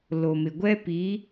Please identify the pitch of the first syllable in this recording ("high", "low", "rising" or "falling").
low